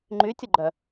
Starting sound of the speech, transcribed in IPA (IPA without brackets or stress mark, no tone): ŋ͡ǃ